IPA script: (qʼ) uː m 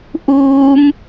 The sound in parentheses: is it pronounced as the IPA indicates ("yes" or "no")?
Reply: no